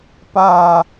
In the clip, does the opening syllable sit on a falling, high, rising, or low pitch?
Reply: falling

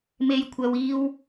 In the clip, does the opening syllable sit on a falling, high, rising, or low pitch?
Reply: high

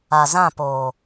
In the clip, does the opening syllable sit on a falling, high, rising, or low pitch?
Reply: low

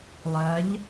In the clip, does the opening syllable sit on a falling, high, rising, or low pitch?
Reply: rising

